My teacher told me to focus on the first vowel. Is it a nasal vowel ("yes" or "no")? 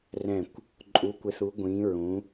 yes